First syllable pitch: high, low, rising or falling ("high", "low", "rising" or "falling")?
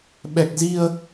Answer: low